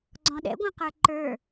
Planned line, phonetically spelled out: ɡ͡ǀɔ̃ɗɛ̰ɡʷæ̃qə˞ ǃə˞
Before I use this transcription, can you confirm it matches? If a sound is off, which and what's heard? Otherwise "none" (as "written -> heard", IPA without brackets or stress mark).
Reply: none